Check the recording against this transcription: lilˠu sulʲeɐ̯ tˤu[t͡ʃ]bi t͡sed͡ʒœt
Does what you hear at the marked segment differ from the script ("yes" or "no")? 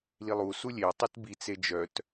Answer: yes